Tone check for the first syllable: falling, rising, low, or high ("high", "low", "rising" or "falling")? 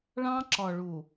high